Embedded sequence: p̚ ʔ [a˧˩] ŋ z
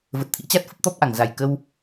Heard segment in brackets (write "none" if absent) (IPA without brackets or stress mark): a˧˩